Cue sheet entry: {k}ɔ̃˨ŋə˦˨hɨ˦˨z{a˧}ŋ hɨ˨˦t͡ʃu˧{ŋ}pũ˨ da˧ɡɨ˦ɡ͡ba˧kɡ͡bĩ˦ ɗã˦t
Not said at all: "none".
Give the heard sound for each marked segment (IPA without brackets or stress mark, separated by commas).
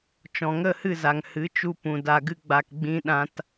t͡ʃ, a˨, none